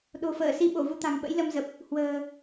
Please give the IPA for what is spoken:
ɗ o̤˨˩ f əː˧˩ s i˧ ɓ o˧˩ v u˧ t̪ a̤˨˩ ŋ ɓ ə̰˧˥ j l ə˧ m z ə˨˩ p̚ | h w ə̤ː˨˩

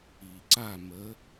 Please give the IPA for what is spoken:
i˨ ǀ a˦˨ m ə˨˦

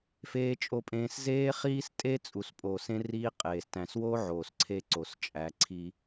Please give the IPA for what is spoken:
f eː˦ t͡ʃʼ o˦ pʼ ẽː˦ s z eː˦ χ iː˦ s tʼ e˦ t͡sʼ u˨ s pʼ oː˨ s ẽ˦ r iː˦ qʼ eː˨ s t æ̃˨ s w oː˦ ʕ oː˨ s ǀʰ e˦ ǀ o˨ s t͡ʃʼ æ˨˦ ǀʰ i˦

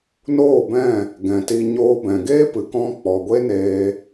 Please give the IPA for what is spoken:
n oː˦˨ b ɛ̃˦˨ | ɡ ɛ̃˨ t i˧ ɲ oː˧ b ɛ̃˨ ɡ eː˦ p ɨ˨ k ɔ̃˧ k͡p ɔ˨ ɡʷ e˦ n eː˧

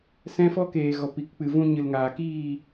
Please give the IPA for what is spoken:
s ɛ̃˦ f ɔ˦ k eː˨ ɣ ɔ˨ p i˨ k k͡p ɨ˨ v ũ˧ ɲ ɨ˨ l ŋ aː˨ k iː˦˨

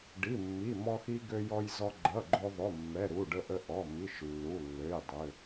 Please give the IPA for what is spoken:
ɖ i˩˧˩ mː i˩˧˩ m ɔ˧ x i˧ ɡ ø˧ j ɔ˧ j z ɔ˧ ɡ͡ǃ ʌ˩˧˩ ɡ͡ǃ o˧ ðˤ o˩˧˩ mː ɛ˩˧˩ ɾ u˩˧˩ ɖ ə˧ ʔ ə˧ ʔ ɔ˩˧˩ m i˩˧˩ ʃ lː u˩˧˩ lː ø˩˧˩ j dˤ ø˩˧˩

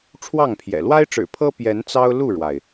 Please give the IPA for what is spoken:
ʈ͡ʂʰ w ɑ˥˨ ŋ pʰ j ɛ̰˨˩ l w a˦ ɪ̯ ʈ͡ʂ ɻ̩˨˩ pʰ ɤ˦ p j ɛ˨˦ n t͡s ɑ˦ ʊ̯ l u˥˨ ɻ w a˩ ɪ̯

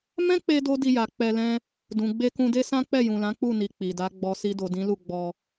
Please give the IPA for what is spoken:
m ɛ̃˦ k͡p e˧ d o˦ d i˧ j a˨ k͡p ɛ˧ l ɛ̃˦ | d ũ˨ ɡ͡b e˧ k ũ˧ d e˦ s ã˦ k͡p ɛ˦˨ j ũ˨ l ã˨˦ k͡p u˦˨ n i˨ k͡p i˨ d a˨˦ ɡ͡b ɔ˧ s i˧ d o˨ d ĩ˨˦ l u˦˨ ɡ͡b ɔ˧

